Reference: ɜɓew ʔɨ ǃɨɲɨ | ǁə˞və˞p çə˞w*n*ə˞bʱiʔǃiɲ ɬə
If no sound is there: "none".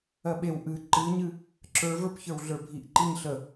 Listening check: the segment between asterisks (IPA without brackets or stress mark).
ɮ